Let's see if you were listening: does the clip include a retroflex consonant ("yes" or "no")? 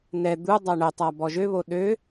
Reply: yes